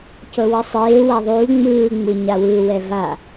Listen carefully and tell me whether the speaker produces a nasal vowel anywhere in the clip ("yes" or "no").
no